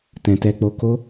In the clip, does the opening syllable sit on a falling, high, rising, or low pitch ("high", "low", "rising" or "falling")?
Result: low